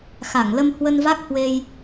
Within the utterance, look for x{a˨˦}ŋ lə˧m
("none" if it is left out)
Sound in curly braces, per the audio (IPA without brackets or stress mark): a˧˩